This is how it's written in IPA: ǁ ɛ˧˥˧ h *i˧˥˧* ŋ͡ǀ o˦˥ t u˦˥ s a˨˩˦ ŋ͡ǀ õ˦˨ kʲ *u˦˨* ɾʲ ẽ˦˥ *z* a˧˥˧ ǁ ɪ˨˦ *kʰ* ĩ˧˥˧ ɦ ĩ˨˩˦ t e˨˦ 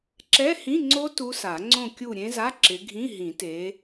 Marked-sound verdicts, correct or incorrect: incorrect: ĩ˧˥˧, correct, correct, incorrect: ɡʱ

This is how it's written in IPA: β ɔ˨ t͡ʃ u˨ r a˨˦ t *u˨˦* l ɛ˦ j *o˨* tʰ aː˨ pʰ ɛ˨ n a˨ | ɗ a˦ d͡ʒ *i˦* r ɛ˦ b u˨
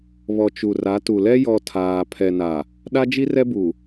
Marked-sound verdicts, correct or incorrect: incorrect: u˨, incorrect: ɔ˨, correct

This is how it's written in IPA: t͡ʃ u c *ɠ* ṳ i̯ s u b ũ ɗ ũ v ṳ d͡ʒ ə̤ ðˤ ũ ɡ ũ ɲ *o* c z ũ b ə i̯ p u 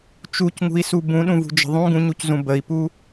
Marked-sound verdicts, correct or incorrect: incorrect: ŋ, incorrect: u

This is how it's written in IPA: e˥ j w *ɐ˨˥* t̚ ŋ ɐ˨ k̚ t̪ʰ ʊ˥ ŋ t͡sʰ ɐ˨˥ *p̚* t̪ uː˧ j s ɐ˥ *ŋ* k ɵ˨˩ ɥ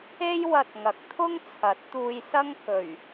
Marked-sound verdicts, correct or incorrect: incorrect: ɐ˧, incorrect: t̚, correct

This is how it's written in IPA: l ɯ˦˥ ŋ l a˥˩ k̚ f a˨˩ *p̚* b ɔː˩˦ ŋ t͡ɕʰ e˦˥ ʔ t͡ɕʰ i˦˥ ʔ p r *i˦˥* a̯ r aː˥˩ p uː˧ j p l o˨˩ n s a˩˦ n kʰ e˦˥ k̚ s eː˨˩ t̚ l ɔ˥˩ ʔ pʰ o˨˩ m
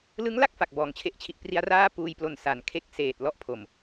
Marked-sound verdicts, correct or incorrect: incorrect: k̚, correct

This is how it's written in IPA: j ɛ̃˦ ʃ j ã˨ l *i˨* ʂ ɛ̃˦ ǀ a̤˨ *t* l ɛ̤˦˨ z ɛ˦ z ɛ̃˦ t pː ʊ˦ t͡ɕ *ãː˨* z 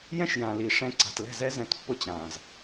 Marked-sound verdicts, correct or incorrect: correct, correct, correct

